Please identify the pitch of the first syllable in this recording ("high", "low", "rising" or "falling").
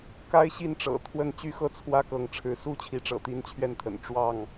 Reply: high